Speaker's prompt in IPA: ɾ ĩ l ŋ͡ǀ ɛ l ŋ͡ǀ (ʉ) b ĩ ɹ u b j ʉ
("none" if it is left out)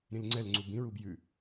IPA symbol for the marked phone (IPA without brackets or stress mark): u